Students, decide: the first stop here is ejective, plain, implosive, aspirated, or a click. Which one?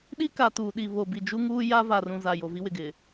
implosive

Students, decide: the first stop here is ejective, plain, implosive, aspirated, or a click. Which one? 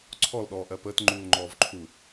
click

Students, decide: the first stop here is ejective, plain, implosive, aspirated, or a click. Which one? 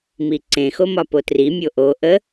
click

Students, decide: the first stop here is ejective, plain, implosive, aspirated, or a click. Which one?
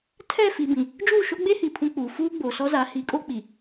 aspirated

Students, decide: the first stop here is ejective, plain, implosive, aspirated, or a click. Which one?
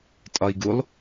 ejective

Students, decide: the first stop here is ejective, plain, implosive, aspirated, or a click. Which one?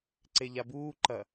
click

